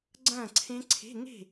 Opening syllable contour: falling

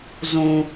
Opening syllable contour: low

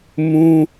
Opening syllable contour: high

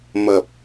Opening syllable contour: low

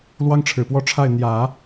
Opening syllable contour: high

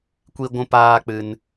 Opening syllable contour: high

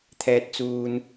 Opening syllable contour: low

